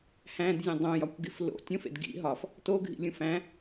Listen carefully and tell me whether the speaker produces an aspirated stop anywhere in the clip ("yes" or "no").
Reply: no